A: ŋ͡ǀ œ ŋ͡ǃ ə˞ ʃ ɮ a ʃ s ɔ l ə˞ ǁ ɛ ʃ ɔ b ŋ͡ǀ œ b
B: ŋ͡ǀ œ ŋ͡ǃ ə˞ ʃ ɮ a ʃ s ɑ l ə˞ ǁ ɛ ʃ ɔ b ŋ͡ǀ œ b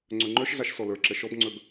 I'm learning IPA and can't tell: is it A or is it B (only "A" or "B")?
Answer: A